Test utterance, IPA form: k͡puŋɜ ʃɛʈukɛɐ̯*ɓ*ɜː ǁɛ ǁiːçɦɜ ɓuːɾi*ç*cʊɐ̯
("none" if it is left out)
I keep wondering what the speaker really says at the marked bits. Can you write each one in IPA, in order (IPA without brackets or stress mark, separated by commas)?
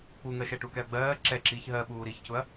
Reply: ɡ͡b, ç